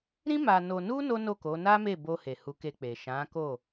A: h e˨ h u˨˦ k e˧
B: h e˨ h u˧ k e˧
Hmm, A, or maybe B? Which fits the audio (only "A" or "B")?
A